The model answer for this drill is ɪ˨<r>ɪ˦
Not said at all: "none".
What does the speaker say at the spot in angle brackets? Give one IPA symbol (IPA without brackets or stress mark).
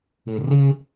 r